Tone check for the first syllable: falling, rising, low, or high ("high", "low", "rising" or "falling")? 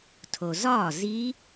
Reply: low